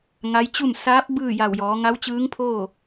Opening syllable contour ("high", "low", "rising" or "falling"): rising